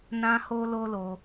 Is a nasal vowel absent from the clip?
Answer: no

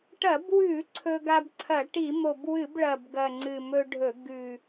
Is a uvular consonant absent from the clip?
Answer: yes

